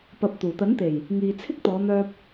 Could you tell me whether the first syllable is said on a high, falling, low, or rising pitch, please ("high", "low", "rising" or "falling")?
low